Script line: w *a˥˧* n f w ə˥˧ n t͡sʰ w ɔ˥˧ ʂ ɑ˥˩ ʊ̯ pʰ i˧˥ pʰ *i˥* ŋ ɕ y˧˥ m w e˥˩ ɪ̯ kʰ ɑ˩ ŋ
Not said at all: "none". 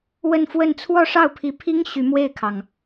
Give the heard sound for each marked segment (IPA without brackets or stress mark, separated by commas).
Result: ə˥˧, i˥